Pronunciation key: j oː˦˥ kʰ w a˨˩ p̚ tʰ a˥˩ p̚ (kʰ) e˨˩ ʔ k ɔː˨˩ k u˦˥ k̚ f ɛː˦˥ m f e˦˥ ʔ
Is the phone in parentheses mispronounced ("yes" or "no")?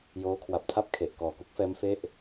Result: no